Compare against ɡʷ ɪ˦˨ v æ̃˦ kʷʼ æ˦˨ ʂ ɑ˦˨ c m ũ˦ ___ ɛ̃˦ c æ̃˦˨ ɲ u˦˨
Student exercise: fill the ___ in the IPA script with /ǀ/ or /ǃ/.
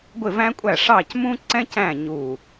ǀ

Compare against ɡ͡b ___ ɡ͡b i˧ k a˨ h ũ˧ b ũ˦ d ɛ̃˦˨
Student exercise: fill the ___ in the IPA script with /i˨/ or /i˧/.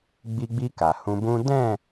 i˧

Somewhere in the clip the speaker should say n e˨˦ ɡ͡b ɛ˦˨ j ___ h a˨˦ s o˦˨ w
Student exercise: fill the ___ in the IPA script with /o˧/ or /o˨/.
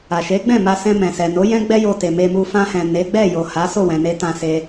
o˨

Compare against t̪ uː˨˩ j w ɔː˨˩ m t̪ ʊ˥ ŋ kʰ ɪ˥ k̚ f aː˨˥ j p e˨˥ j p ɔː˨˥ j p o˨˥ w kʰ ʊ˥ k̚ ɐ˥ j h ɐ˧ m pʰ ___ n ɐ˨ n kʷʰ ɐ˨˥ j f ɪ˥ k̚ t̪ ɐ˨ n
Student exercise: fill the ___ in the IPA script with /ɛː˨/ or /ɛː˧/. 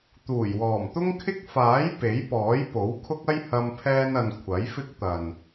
ɛː˧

